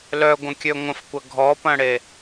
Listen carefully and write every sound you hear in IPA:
l œ ɡʷ ə̃ kʲ ø ŋʷ ə̃ f kʷ ɐ ɡʱ ɔ p ɐ̃ ɽ e

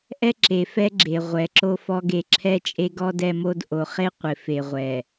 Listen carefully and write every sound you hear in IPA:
ʔ ɛ˦ ǁ e˨ f ɛ˦ ɡ͡ǁ e˨ ʁʷ ɛ˨˦ ǁ o˦ f ɔ˦ ɡ e˦˨ ǁʰ ɛ˦ t͡ʃʼ e˦ ɡ ɔ˦ d ɛ˦ m o˦ d ʔ o˨ χ e˦ qʷ ɪ˨ f e˨ ʁʷ ɛ˨

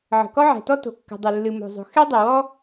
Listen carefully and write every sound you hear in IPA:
ʕ ə̤˩ k ɔ˥ ʕ ɛ̤˩ t ɔ˥ t o̤˩ kː ə̤˩ dˤ ə˩ lː ɨ˩ m o̤˩ zˤ o̤˩ x ɛ˥ dˤ ə˩ w ɔ˥

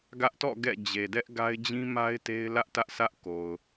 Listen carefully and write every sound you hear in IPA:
ɡ ä˦ ʔ t ɔ̰˦˨ ɡ ɛ̰˦˨ d͡ʑ e˨ d ɛ˦ ʔ ɡ a˦ ɪ̯ d͡ʑ ĩ˦ m a˦ ɪ̯ t e˦ ɪ̯ l ä˦ ʔ t ä˦ ʔ sʰ ä˦ ʔ k o˨ ʊ̯

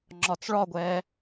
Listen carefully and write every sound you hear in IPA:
ŋ͡ǁ ɒ t͡s ɭ ɒ ɡʷ ɛː

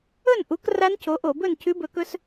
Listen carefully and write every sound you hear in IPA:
ɵ˥˨ n ʔ u˨˥ k r a˦˥ n cʰ o˨˥ ʔ o˧˩˧ b ɵ˥˨ n cʰ ʉ˦˥ b ɵ˨˥ k ɵ˦˥ s

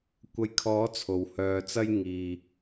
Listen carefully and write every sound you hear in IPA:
kʷ ɐ˨˧ j kʰ ɔː˨˥ t͡sʰ o˨ w h œː˧ t͡s ɐ˥ j ŋ iː˨

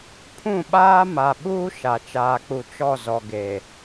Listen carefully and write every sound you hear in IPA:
pʰ ũ˦˨ ɓ aː˦ m a˨ ɓ uː˦ ʃ a˨ t͡ʃ aː˨ k͡p u˨ t͡ʃ ɔ˦˨ z ɔ˨ ɡ e˨

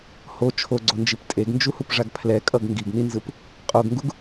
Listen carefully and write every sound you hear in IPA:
h o t͡ʃʰ o ɡ͡ǀ o n d͡ʒ i p tʼ e ɡ n d͡ʒ u h u p ʐ a ɡ pʰ l ɛ kʼ ʌ ɡ ŋ ɡ i ɡ n i n z ɯ p | qʼ o ɡ ŋ ɡ u ɡ

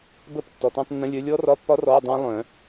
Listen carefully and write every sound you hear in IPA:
b ə˧˥˧ p tː ɔ˩ t ɔ̃˧˥˧ tˤ nː ə̃˧˥˧ lʲ œ˦˥ lʲ ɔ˦˥ r ɒ˧˥˧ pː ɒ˦˥ r ɔ˧˥˧ dˤ œ̃˦˥ lˠ œ̃˨˩˦

